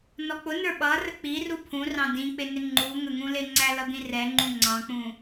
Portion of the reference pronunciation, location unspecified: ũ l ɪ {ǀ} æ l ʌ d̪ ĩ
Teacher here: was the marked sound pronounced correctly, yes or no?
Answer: no